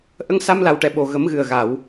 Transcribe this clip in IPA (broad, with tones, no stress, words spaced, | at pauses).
ʔə˧ŋsa˧mla˨˩wʈɛ˨˩˨ ɓo˨˩ɣə˨˩˦mɣɨ˨˩ə̯ɣa˨˩˨w